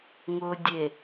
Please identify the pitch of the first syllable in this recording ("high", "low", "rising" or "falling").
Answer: low